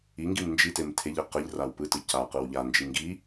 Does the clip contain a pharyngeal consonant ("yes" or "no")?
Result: no